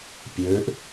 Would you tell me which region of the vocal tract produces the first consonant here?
lips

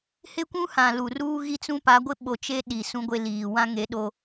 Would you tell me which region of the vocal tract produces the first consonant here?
throat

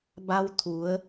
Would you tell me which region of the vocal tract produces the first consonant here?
lips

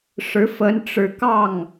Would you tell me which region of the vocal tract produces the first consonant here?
retroflex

